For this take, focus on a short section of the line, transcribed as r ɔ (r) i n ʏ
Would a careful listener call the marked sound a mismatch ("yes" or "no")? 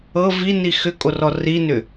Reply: no